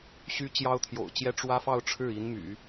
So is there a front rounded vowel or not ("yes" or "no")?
yes